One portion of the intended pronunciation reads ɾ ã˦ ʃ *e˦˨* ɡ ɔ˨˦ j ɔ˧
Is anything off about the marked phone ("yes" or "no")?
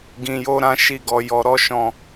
yes